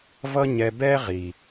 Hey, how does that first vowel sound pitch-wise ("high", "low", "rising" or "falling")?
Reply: high